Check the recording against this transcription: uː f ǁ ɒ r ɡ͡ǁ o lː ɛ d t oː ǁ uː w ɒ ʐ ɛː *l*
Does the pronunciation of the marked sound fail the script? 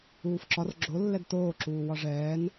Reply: yes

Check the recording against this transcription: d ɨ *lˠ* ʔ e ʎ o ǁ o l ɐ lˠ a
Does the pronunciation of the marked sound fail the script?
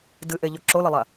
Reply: yes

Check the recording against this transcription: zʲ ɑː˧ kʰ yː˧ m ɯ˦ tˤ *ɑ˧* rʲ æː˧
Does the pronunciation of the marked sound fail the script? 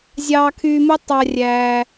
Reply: no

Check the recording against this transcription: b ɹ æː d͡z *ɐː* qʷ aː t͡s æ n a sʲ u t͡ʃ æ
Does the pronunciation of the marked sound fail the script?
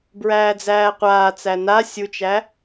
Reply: yes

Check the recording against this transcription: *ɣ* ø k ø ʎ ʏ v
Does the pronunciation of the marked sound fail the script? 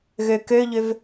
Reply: no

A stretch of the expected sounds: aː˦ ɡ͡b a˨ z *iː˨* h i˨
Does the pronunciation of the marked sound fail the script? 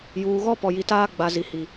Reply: yes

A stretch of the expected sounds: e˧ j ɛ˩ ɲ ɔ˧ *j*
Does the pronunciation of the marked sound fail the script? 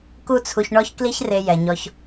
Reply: yes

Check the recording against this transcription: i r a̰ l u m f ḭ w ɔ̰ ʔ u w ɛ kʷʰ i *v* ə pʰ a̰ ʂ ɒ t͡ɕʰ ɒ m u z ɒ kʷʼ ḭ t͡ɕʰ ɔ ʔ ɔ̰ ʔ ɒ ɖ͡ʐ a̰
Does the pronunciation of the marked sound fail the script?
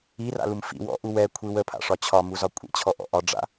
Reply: yes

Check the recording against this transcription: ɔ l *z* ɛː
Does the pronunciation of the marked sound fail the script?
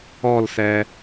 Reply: yes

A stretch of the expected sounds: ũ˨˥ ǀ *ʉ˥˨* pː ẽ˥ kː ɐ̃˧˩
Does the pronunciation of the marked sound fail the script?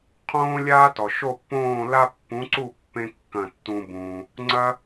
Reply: yes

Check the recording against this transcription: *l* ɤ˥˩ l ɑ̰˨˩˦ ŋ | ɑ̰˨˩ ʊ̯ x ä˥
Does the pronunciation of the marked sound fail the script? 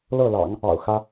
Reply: no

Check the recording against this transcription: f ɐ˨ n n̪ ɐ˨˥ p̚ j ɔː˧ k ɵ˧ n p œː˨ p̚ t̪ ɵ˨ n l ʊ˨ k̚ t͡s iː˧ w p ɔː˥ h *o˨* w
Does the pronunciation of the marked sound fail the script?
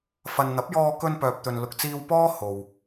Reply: no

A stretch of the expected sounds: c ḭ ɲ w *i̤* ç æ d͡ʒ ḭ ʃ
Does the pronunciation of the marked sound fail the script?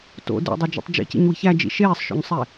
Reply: no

